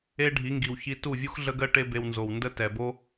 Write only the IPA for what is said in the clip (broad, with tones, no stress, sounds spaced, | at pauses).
e˦ ɖʱ i˨˦ ŋ ɡ i˨ w ç i˧ t u˦˨ vʲ u˦ x ɮ ə˦ ɡ ɜ˦ ʈ e˦ b e˧ w n z o˨ w n d ə˦ t ɛ˨ b o˦